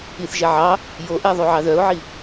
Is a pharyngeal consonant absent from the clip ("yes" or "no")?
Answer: no